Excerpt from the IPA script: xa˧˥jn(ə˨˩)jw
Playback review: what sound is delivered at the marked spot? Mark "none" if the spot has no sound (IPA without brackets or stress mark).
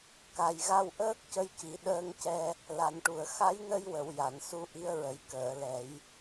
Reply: ə˧